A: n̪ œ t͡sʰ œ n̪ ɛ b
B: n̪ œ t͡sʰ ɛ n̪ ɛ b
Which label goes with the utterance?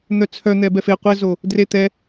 A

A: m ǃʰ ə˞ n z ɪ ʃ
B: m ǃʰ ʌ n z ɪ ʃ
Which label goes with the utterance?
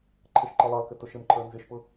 A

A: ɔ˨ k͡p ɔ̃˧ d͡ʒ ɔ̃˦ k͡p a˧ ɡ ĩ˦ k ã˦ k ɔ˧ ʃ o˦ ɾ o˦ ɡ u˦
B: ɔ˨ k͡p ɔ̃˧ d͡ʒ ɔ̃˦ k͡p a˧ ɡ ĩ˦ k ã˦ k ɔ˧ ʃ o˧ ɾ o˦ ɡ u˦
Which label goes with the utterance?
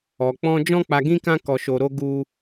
B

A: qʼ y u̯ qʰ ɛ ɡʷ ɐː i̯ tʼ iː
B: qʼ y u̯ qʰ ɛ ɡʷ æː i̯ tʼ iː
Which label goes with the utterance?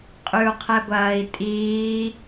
A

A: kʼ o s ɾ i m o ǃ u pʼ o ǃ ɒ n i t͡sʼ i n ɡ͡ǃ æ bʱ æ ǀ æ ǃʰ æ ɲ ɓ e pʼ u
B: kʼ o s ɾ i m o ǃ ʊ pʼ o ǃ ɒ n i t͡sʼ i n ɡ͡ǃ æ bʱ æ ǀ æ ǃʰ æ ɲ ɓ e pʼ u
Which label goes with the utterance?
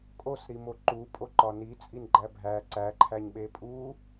A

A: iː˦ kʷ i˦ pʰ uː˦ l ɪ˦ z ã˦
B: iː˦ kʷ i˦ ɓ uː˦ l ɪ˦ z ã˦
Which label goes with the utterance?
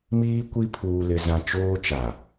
A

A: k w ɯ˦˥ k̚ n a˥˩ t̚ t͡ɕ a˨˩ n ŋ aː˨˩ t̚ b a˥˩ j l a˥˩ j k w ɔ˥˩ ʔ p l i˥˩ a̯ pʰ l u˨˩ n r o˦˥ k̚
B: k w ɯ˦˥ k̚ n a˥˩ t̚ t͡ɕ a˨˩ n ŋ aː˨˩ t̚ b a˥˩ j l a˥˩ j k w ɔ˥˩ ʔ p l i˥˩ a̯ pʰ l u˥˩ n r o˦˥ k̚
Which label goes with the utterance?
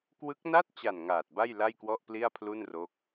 B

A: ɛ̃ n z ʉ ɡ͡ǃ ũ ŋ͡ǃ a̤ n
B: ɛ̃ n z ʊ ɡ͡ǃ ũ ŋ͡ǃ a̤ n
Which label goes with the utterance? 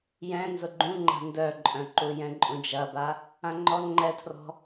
B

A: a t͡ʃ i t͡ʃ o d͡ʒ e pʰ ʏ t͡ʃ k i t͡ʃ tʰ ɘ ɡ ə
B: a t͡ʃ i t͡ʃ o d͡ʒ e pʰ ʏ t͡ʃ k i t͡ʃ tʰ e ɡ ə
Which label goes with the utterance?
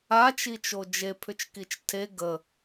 B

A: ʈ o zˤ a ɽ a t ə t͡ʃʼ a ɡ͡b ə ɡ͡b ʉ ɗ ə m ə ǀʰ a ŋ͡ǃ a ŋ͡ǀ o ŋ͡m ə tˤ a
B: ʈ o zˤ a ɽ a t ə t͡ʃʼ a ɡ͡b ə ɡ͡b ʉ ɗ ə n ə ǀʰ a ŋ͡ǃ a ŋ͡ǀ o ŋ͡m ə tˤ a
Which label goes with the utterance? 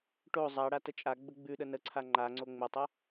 B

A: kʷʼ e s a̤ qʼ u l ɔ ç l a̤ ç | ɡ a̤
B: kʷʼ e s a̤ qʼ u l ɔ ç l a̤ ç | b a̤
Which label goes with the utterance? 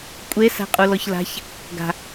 A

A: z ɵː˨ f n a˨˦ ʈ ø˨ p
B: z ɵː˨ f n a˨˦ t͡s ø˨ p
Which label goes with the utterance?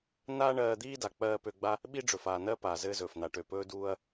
A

